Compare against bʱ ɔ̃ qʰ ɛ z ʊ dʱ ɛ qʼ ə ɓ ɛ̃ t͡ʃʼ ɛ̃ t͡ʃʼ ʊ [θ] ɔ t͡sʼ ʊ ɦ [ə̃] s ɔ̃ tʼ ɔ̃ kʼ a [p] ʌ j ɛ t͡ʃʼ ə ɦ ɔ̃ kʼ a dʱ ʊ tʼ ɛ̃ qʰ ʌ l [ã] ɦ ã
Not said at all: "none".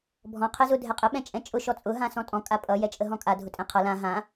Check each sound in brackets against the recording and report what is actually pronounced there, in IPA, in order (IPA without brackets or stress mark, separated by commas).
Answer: ʃ, ã, pʼ, ã